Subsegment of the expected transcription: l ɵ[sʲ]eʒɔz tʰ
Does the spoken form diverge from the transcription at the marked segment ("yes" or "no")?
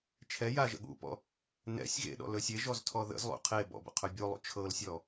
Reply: no